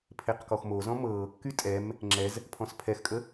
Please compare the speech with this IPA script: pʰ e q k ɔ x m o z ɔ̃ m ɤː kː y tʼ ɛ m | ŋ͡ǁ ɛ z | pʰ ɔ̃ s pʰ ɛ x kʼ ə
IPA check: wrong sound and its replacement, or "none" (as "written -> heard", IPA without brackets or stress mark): none